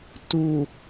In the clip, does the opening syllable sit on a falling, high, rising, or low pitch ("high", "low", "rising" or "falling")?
low